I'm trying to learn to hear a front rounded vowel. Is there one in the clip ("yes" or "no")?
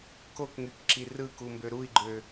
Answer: yes